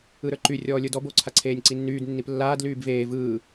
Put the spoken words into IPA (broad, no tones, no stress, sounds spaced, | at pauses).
ɯ ɾ ə˞ ǃ y rʲ ɔː lʲ ə˞ d ɔ b o ǀʰ a ǀʰ eː nʲ ǀ i nː yː d nː i p lː aː d l yː b v eː v ɯː